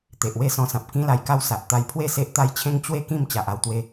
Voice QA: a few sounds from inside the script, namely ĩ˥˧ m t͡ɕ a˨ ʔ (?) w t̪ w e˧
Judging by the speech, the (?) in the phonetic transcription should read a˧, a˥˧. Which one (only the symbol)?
a˥˧